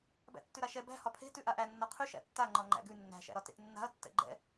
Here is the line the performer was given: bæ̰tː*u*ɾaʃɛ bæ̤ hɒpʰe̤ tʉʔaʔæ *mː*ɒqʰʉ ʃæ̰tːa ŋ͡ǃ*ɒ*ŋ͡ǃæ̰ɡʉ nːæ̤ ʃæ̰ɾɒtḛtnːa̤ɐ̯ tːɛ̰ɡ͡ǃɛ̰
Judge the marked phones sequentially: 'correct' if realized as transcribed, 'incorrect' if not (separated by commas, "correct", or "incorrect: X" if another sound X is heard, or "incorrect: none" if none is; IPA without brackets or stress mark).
incorrect: ʉ, incorrect: nː, correct